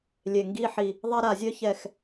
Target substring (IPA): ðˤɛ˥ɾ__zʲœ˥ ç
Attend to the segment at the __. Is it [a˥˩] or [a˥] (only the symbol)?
a˥˩